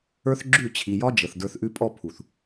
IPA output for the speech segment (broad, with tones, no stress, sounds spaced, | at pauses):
ə˞˦ θ ɡ͡ǁ ʉ˦˨ t͡ɕʰ i˨ j ɒ˦ d͡ʒ ə˨ θ d ə˞˧ θ ʔ ʉ˦ pʼ ɔ˦ pʰ u˨ θ